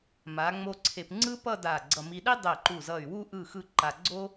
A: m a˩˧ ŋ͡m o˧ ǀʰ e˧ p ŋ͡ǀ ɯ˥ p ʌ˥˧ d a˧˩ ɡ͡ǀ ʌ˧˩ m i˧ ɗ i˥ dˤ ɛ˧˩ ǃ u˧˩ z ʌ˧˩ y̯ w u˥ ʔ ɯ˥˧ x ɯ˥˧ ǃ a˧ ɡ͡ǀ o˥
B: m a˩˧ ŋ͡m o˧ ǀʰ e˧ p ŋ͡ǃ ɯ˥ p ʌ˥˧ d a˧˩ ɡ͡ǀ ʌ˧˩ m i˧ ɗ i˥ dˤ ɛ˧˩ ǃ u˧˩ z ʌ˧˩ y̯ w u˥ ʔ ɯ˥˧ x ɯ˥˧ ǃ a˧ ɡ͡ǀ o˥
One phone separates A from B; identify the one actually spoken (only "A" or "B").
A